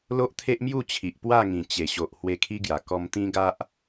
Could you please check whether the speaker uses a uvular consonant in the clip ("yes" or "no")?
no